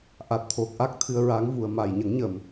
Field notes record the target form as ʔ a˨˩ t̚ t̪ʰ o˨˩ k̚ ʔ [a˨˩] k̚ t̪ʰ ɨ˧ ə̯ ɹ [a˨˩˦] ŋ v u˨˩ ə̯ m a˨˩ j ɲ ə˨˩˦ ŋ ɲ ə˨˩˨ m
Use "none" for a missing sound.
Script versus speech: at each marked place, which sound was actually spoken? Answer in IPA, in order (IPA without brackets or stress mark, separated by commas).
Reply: a˦˥, a˧˥